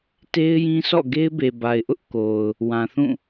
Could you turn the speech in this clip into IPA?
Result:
t e˦ ɪ̯ j ĩ˦ s ɔ̰˦˨ ɡ e˦ ɪ̯ b e˨ b a˨ ɪ̯ ʔ ʊ˦ ʔ k o˨ ʊ̯ | w ã˨ θ ũ˦˨

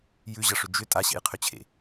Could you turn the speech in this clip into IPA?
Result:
j ʉ ʑ ʌ ʂ ʏ d͡ʒ ʏ tʼ a ɕ ḛ j qʰ ʏ t͡ɕʰ ḛ

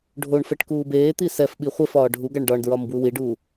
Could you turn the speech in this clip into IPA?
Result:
ɖʱ o ɳ f ɛ ʈ k uː b eː t̪ i s ɛ f ɓ i χʷ ɛ f ɒː ɖʱ u ɡ a ɳ ɖ ɒ ɳ d ɹ ɒ m b w u w i ɖ uː

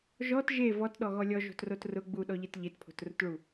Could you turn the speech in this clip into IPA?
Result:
ʒ ɔ t ʒ e v ɔ t ɗ ɔ ɣ ɔ lʲ ɔ ʒ o̤ t r o t r ʊ ɡ͡b u ɗ ɔ ʎ e t ʎ e t pʰ o̤ t r ʊ t ɭ u

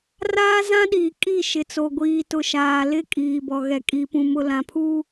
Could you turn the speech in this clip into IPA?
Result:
r aː˦ z ã˦ ɗ iː˨ kʼ i˦˨ ʃ ɪ˨ t͡s o˨ ɡʷ iː˨ t ʊ˨ ʃ aː˨ l ɪ˦˨ kʼ iː˨ b ɔ˨ ɣ ɛ˨ kʼ i˨ p ũ˨ m ʊ˨ l ã˨ pʰ u˦

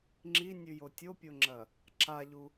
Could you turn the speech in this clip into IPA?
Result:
ŋ͡ǁ i nʲ ʉ j o tʲ o pʲ o ŋ͡ǁ ɐ | ǁ a ʎ u

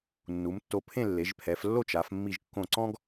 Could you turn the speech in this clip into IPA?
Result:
nː u˩˧ m tː o˧ pʰ ẽ˥˧ lː e˩˧ ʒ pʰ ɛ˩˧ f lː o˥˧ t͡ʃ a˩˧ f mː i˧˩ ʒ kː õ˧˩ ǀ ɔ̃˥ ɡ

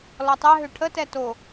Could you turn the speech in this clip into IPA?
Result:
l ɔ tˤ ɛ ɦ ø ʈʰ ə t ɛ t o

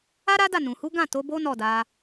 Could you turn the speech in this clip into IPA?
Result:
a˦ ɾ a˦ d a˦˨ n ũ˨ h u˨˦ ɡ ã˦˨ t o˨˦ b o˦ n ɔ˦˨ d a˧

